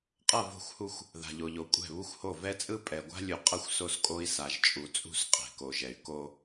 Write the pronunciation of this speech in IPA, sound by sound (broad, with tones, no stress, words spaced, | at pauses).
qʼʌ˦˨vo̤˦˨xʷhu˦xʷ | ða̤˨ʎo˨ʎo˨ kʷʼɛ̤˦˨βu˦xʷho˦˨ vɛ˦t͡sʼɯ˦ pʼɛ˨ɡʷa̤˦lʲu˨ qʼʌ˦xʷso˦skʼo˦i̯ sa˨ʒt͡ʃʼu˨t͡sʼṳ˦˨s qʼɛ̤˨ko˨ʒɛ˨y̯ ko˦